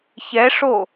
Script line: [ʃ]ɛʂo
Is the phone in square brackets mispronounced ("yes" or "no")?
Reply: yes